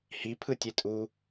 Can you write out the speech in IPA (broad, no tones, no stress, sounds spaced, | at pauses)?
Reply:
h i pʰ ɯ tʲ e tʼ u